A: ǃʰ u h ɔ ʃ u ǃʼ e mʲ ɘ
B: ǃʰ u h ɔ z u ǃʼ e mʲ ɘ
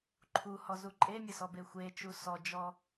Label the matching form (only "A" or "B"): B